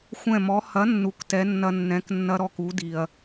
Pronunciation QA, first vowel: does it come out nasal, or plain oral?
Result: nasal